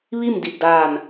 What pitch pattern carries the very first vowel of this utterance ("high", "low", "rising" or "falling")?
falling